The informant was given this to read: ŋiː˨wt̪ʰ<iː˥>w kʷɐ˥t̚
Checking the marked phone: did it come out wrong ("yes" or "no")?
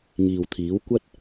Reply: yes